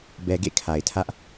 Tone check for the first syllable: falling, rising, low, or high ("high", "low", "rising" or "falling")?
low